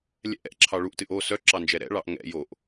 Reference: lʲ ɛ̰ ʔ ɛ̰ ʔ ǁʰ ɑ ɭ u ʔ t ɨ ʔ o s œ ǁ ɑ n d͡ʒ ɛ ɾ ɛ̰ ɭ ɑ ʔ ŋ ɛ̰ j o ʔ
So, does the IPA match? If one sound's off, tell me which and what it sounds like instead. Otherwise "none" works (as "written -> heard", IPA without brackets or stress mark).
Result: none